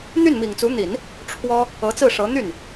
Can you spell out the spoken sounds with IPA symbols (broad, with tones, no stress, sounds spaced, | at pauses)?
n̪ y˥˩ n m i˨˩ ŋ t͡s u˧˥ n̪ i˨˩˦ n | ʈ͡ʂʰ w ɔ˥ | ɤ˧˥ t͡s ɹ̩˥˩ ʂ ɤ˧˥ n̪ y˥˩ n